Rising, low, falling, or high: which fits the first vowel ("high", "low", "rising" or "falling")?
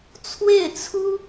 falling